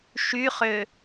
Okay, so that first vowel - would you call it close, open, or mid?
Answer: close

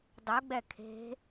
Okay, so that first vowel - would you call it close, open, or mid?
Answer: close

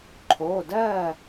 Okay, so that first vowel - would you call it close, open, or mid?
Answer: mid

